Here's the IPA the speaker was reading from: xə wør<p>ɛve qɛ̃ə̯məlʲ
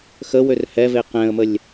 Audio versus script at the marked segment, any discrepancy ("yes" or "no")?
yes